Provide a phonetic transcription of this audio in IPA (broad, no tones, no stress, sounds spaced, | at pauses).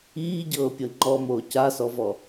iː ɟ ɤː pʲ ɤ ŋ͡ǃ ɔ m oː c a s ɔ v ɔ